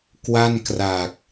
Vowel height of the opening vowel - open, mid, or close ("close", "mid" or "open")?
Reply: open